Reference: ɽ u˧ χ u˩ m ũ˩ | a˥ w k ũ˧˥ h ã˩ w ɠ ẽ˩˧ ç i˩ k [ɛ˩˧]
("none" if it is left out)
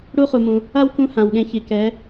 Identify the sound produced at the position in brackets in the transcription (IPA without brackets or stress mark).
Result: ɛ˩˧